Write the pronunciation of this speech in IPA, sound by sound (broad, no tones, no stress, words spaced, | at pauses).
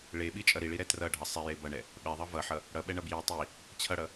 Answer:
ɭeɓit͡ʃʼʌ ɾiɭiɾɛ trʌɖʱʌ sˤeje bʌɳɛ | ɓɛðˤʌ vʌħʌ | ɽʌɓɛɳʌ bji tˤi | t͡ɕʰʌɽʌ